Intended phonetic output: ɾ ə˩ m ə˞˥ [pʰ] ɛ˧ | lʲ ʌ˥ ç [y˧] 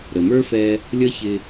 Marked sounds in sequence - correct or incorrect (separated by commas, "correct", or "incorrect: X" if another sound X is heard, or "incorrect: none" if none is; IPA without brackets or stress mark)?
incorrect: f, incorrect: ɪ˧